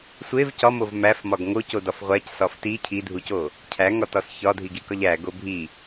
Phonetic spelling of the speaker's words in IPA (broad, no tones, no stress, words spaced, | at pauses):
sʷev cɒmov mæfmɒɡ ŋocodɒf ʁʷæcsɒf ti cʰidʱuco | cʰæŋɒtɒs çɒdʱiɡikɒʎ æɡo bʱi